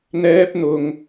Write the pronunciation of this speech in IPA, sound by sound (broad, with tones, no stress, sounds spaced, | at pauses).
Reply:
n̪ ɛː˥ p̚ n̪ ʊ˧ ŋ